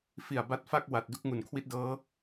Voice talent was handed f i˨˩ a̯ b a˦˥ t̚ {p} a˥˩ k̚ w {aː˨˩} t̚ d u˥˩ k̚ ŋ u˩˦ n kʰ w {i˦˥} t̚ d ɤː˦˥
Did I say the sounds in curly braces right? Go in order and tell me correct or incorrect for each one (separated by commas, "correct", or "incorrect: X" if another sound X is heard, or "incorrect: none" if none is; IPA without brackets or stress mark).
incorrect: f, incorrect: a˨˩, correct